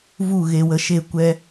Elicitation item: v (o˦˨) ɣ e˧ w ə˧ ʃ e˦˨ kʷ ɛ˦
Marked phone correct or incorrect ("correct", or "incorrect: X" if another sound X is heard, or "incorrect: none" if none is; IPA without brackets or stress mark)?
incorrect: u˦˨